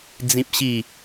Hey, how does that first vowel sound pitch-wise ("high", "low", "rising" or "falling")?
high